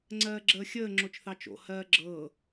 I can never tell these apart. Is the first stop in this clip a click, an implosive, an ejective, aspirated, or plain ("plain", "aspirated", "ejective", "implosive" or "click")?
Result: click